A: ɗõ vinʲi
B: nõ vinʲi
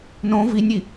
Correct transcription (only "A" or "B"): B